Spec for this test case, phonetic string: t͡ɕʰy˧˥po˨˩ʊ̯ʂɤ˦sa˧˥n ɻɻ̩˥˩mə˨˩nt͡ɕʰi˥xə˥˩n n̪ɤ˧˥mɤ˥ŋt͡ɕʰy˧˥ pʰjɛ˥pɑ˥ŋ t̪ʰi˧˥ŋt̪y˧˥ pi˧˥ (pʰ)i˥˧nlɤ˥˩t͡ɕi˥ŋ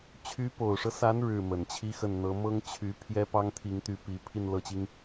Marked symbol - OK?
yes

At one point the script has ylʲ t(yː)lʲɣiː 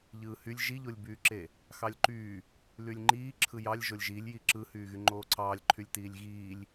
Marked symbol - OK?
no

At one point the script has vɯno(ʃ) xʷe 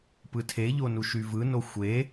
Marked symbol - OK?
no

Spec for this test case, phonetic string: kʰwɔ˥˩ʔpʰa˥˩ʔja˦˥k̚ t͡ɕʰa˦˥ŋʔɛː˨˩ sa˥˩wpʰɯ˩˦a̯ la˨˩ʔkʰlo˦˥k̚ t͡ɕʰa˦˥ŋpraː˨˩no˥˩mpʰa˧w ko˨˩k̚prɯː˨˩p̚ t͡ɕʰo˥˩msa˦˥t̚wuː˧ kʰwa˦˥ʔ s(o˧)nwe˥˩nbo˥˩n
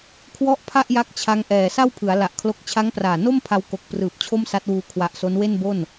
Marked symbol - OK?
no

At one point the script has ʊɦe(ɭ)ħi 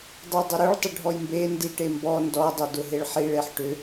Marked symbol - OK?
yes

